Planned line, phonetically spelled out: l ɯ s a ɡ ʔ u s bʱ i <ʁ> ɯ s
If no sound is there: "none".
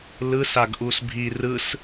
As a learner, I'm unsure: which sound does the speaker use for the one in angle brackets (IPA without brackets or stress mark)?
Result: r